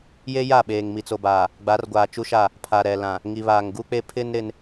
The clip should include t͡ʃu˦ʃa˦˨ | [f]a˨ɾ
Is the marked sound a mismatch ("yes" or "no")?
yes